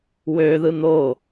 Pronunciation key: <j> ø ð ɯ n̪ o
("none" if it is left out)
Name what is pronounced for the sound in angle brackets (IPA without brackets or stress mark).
w